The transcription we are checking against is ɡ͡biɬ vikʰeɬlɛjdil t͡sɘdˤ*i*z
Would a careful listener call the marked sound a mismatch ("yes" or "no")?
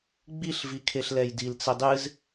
yes